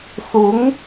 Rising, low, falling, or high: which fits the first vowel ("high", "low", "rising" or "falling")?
rising